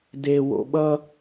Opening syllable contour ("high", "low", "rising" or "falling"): low